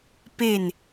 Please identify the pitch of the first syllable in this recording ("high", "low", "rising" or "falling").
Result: falling